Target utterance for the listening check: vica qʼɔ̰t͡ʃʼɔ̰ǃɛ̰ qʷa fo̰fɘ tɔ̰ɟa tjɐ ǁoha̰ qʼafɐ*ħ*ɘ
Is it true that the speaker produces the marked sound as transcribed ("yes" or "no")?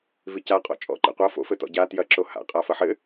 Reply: yes